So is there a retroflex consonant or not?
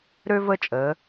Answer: no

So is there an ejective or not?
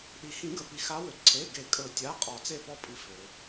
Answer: yes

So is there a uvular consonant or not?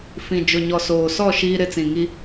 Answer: no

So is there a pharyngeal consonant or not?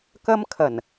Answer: no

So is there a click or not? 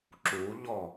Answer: yes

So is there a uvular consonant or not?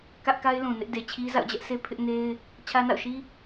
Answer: no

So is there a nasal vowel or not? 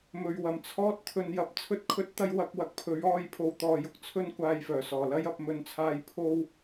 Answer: no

